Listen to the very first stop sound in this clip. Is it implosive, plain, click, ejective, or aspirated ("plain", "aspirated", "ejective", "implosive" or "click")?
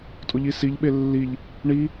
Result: ejective